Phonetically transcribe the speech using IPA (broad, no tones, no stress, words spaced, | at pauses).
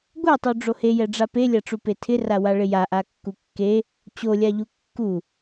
ɡʷɛtˤu ɖ͡ʐohejɛɖ͡ʐa pelʲaʈ͡ʂu petʰɪrawa ɭɪjaʔa kːukːe | t͡ɕolʲaʎu kːu